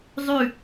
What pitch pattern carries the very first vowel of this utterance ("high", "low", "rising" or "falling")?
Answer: falling